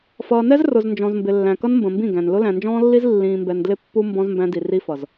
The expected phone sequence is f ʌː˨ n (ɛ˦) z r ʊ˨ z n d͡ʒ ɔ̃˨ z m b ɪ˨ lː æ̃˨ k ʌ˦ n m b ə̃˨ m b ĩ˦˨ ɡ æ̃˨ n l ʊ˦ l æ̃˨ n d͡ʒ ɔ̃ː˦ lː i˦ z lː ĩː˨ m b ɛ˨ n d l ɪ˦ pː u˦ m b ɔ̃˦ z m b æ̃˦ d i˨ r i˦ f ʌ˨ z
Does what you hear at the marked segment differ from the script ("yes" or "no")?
no